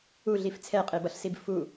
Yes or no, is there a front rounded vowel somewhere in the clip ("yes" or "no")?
no